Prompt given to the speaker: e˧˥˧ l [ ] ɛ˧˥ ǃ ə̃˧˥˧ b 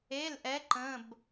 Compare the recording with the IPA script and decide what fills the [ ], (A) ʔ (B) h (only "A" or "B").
A